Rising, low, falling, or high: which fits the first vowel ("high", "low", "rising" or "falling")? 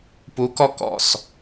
rising